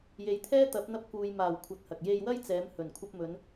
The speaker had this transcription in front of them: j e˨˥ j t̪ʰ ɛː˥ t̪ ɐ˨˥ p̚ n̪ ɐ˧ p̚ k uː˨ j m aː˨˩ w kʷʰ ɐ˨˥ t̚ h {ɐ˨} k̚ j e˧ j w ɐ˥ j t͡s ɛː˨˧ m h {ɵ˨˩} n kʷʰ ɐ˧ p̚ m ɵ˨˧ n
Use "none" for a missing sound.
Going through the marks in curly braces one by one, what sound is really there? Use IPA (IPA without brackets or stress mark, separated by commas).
ɐ˨, ɵ˨˩